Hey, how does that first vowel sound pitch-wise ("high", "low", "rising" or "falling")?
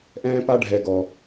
high